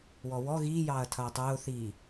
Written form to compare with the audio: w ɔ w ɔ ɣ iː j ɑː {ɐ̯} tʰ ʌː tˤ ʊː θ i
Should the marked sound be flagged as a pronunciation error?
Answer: no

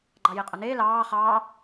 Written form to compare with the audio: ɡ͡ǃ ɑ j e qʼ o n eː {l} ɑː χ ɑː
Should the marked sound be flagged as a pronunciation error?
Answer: no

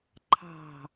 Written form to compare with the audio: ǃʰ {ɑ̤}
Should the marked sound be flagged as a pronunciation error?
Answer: no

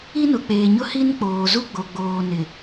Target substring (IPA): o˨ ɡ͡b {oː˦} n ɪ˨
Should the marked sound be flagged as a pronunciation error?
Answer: yes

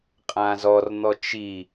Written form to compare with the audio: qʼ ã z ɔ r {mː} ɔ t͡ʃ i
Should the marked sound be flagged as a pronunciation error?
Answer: yes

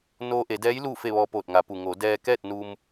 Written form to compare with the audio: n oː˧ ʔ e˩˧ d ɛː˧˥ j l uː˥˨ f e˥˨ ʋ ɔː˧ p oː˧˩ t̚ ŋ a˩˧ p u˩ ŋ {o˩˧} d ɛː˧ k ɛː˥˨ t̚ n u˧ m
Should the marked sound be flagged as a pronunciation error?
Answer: no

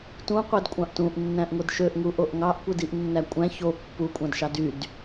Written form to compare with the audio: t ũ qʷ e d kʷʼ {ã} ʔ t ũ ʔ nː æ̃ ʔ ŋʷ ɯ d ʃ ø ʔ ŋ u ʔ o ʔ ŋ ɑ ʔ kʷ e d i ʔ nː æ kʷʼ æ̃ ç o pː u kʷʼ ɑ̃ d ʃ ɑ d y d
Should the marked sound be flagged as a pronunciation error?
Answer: yes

